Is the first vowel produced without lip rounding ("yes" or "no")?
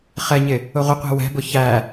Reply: yes